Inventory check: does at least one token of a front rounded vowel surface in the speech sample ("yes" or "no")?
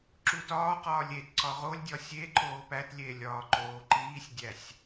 no